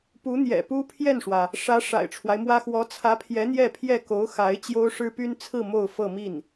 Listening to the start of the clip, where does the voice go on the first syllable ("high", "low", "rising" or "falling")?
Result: rising